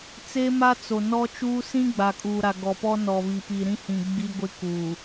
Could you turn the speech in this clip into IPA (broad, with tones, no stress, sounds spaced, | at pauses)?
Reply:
t͡s e˦ m a˦ t͡s o˨ n ɔ˦ t͡ʃ uː˦ s ĩ˦ ɡ͡b a˨ kʼ uː˨ ɾ a˨ ɡ ɔ˨ p ɔ˦ n ɔ˨ β i˨ p i˨ ɾ ĩ˦ h ĩ˨ ɡ͡b i˦ ɡʷ ɪ˦ k uː˨